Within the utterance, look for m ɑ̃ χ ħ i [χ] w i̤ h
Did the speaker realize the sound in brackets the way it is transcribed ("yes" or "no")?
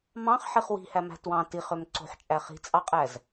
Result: yes